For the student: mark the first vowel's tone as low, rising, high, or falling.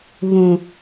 low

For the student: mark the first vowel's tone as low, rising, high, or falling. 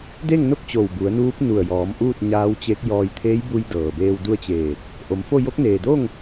falling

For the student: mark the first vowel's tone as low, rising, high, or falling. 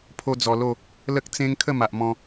high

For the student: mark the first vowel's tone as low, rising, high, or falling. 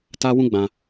high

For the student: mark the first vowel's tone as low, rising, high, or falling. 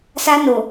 high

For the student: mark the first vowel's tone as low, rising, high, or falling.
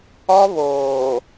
high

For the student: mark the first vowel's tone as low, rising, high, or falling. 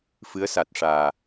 rising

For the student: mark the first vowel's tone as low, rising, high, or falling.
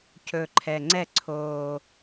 low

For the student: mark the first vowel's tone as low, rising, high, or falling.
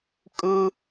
high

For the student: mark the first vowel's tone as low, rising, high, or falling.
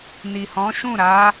low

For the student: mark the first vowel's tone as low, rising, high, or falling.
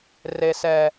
low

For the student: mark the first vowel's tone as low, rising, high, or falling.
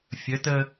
rising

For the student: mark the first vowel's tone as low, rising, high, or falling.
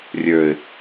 low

